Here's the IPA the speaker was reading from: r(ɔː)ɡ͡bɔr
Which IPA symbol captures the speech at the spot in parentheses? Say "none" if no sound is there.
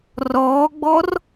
ɔː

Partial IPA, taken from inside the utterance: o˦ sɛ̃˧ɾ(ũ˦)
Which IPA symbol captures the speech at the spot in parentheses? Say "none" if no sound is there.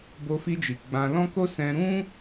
ũ˦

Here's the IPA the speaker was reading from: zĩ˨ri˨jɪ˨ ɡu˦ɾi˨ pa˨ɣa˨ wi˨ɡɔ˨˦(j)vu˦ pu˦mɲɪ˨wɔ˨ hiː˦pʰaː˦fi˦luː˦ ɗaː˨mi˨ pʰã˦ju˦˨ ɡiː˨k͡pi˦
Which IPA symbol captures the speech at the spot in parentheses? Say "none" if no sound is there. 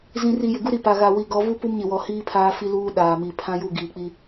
none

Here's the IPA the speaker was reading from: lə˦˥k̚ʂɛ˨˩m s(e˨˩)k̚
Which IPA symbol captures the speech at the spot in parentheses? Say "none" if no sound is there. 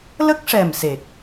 e˨˩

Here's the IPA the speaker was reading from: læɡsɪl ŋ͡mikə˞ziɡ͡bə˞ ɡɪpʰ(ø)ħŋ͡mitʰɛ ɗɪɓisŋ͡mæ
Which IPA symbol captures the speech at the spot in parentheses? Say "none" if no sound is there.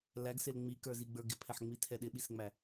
ɛ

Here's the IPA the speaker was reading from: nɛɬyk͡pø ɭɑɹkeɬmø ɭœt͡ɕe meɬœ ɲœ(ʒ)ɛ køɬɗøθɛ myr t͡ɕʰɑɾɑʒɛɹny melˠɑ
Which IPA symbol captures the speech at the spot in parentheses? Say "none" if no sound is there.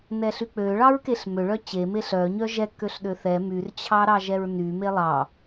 ʒ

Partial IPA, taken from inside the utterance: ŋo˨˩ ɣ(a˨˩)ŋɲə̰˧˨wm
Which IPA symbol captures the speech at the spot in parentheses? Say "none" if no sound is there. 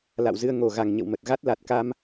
a˨˩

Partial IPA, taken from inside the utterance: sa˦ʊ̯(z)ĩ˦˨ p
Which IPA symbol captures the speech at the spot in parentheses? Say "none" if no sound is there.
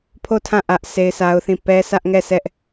θ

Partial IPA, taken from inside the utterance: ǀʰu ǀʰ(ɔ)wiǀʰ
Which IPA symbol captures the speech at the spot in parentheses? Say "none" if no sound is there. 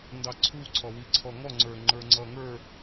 ɔ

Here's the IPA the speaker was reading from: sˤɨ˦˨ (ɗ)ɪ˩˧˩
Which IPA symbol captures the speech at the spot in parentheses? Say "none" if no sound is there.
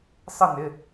n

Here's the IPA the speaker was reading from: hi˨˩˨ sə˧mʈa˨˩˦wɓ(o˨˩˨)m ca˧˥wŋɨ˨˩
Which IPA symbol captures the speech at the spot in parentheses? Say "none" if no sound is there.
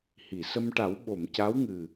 o˨˩˨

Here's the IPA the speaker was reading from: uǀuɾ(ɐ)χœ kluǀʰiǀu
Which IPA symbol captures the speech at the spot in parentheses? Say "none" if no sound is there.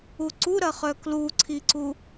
ɐ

